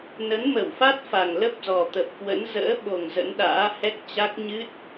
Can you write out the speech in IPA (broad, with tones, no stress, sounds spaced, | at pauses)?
n ə˨˦ n m ə˧˩ w f a˦˥ t̚ f a˨˩ ŋ l ə˦˥ p̚ z ɔ˨˩ t̪ ə˨˩ p̚ k w ə̰˧˥ n z ə̰ː˧˥ ɓ o˨˩ ŋ z ə̰˧˥ n ɗ a̰ː˧˥ h ɛ˦˥ k̚ t͡ɕ a˦˥ k̚ ɲ ɨ˦˥ t̚